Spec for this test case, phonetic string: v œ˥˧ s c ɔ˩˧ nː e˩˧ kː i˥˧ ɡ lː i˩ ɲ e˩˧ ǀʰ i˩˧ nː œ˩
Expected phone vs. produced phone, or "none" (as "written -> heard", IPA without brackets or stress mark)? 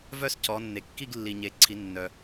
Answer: none